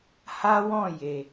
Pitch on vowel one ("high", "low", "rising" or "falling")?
high